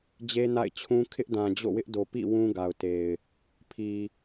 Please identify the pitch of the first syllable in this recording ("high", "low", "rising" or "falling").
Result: high